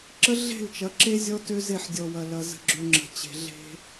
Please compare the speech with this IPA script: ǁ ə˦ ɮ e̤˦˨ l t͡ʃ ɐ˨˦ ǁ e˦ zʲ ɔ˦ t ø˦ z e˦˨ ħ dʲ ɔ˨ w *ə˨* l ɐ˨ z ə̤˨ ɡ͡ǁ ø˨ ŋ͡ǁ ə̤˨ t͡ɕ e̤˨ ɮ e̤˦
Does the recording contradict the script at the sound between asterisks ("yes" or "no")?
yes